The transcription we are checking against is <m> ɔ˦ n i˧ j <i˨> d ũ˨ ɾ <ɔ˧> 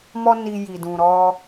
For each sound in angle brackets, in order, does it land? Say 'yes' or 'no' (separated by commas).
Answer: yes, yes, yes